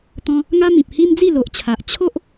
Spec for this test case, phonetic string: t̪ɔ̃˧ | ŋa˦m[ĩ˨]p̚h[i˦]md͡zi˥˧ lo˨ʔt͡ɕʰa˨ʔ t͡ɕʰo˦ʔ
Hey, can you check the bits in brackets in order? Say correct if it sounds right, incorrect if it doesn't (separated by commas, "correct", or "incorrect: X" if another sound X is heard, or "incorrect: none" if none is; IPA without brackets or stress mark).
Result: correct, correct